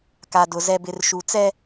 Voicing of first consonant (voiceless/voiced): voiceless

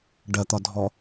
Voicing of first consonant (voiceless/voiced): voiced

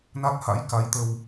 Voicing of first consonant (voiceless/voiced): voiced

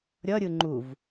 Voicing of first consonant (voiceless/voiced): voiced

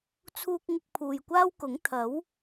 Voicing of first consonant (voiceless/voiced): voiceless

